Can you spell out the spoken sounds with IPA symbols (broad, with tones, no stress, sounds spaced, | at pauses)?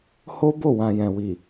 h o˦ b o˦˨ w ã˨ j ɛ̃˨ w i˨